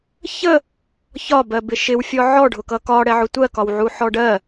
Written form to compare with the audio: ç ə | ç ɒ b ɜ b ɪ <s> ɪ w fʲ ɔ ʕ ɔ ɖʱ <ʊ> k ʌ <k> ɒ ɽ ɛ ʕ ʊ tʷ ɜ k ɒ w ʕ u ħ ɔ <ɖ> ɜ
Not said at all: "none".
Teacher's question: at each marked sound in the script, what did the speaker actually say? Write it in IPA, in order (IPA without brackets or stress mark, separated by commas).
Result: ʃ, ʊ, k, ɖ